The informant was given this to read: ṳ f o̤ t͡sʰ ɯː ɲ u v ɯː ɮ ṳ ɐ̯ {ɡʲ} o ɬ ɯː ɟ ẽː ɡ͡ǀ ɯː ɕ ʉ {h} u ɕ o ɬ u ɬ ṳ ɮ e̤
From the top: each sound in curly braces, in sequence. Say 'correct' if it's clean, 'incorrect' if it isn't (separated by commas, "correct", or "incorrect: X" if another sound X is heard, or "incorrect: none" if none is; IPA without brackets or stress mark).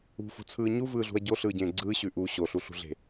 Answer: incorrect: ɟ, incorrect: ʔ